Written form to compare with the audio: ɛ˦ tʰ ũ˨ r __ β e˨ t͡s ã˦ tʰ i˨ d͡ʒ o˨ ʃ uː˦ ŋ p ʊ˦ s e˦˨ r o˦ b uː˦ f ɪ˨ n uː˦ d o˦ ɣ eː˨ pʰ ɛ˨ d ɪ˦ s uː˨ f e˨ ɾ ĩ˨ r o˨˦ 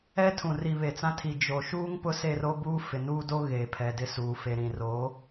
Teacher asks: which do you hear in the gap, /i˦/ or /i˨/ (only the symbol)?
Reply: i˨